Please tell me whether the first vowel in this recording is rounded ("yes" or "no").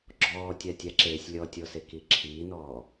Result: yes